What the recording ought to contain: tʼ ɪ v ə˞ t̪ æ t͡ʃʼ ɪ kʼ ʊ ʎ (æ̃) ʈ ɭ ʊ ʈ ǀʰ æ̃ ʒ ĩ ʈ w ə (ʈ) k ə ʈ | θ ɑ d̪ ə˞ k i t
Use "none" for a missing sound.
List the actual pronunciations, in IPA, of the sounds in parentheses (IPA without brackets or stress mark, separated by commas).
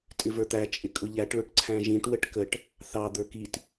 æ, ʈ